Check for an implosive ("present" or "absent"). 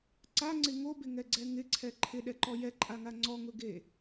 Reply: present